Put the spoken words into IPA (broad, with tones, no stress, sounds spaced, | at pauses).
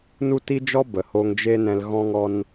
n u˦ t i˦ d͡ʒ ɔ˦ b ə˨ h oː˧ ŋ d͡ʒ e˦ n ɛ̃˧ l ɣ ɔ̃˧ ŋ ɔ˧ n